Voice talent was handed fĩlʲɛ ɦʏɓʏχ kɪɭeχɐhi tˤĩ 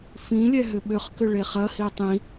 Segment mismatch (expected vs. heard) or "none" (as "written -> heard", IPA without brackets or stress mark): ɪ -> ʏ